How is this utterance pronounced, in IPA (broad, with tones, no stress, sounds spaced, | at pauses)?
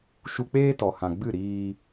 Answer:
ʃ u˧ k͡p eː˦ t ɔ˨ h ã˨ ɡ͡b ɨ˦˨ ɾ iː˧